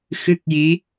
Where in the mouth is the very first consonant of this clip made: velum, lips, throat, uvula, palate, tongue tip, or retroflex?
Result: velum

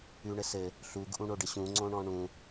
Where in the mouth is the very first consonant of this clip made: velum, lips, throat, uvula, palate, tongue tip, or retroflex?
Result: retroflex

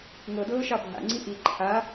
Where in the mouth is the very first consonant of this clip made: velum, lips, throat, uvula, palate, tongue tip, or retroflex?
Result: velum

